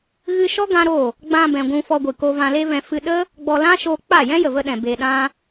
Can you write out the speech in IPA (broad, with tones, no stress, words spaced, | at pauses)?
ɣɨ˧ʃɔ˦ ɡã˦ɾo˦˨ | ɡ͡bã˧bɛ̃˨ ɡʷũ˧ fɔ˧ɡʷɨ˨ koː˧vã˧le˦vɛ̃˧ fɨ˧ɗə˦ | ɡ͡bɔ˧ lã˦ʃoː˧ k͡pa˦˨ jɛ̃˦jə˨və˧ɗɛ̃˨ be˧ɗã˦